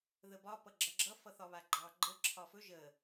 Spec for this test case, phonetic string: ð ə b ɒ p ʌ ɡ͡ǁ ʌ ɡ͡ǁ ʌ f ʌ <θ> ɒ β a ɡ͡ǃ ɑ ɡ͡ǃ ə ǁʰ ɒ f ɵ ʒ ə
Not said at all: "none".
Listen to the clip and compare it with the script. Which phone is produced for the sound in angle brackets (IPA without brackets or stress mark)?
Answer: θ